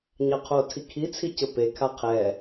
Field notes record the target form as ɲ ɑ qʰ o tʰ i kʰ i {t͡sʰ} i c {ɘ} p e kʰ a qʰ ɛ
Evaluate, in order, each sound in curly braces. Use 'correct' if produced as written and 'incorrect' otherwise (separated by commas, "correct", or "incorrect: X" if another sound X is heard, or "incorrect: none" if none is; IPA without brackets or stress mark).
correct, correct